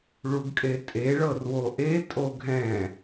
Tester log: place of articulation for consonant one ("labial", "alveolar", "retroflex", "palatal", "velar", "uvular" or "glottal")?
retroflex